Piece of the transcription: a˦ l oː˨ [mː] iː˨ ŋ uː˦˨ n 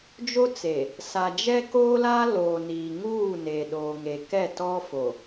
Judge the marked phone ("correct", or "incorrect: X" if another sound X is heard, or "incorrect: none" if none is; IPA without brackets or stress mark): incorrect: n